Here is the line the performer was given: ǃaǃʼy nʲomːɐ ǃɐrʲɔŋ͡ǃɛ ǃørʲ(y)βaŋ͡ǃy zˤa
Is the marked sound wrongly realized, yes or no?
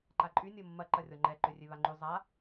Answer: yes